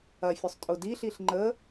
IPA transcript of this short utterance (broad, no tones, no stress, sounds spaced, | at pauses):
ɐ fʲ ʊ sˤ tʼ ʊ d i ɬ i ɬ ŋ͡ǃ ə